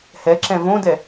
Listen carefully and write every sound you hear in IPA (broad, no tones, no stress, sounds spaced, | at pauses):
h ɛ ǁ ɛ̃ v õ d ɛ